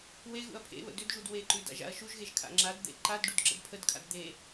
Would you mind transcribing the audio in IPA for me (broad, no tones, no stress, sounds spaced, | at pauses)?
w e ɣ ṵ ɐ̯ pʰ ḛ β ə̰ d ʏ d ʒ u d w e ǃ ʉ d a̰ ʒ a̰ ɐ̯ ʃ u ʒ ɣ e ʒ kʰ a̰ ŋ͡ǁ a d d̪ ḛ ǃ a d ɖ u d ǁ ə̰ d pʰ ə d kʰ a̰ d d̪ e